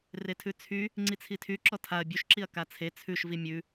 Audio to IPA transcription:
retʰʉt͡sʰy | ŋ͡ǀit͡sʰitʰy ǁɔtʰaɐ̯ bʲʉʃǁiɐ̯ kat͡sʰe t͡sʰʉʃ vimʲʉ

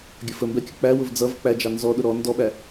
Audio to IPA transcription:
ɡʲəfəmbɛ kʲək͡pæwʊv d͡zʌv k͡pæd͡ʒɑ nzɔɗʊ ɾɔ ndɔɓæ

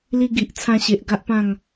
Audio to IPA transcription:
li˧ɡi˨ʔt͡sʰã˧ɕe˨ʔ ɡa˦ʔpã˥˧ŋ

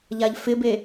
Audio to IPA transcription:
ʎaʎfɪbe

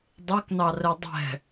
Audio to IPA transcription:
dˤeknɑrɛ dˤɛ̤

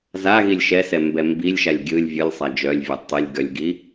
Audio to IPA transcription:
zaɣilʲ ʃɛsɛ mbɛmbilʲʃalʲ ɡʲɯlʲ vʲɯlʲsˤa d͡ʒœlʲvʲɛ tˤilʲ ɡœlʲɡi

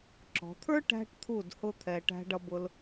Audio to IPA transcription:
ǁɔ̤˩˧t̪ʰə˞˥ ʈæ̤˧ʈt̪ʰu˧˩d hʊ˥˧t̪ʰɛ˧ ʈæ̤˧ɖʌ˧bʊ˧l

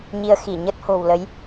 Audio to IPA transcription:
ɲi˧ə̯xi˧˩ ɲə˦˥t̚ho̤˨˩wlə˨˦j

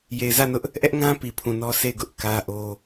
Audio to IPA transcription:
je˨ɪ̯zä˦˨nʊ˦ʔ | ʔɛ˦ʔŋã˦ pi˨pʰũ˨nɔ˦ se˦˨ɪ̯ɡʊ˦ʔ kä˦ʔo˦

